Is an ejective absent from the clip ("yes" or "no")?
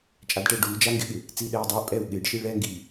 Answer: no